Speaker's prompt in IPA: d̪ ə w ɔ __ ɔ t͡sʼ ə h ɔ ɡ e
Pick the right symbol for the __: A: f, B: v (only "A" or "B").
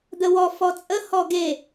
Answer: A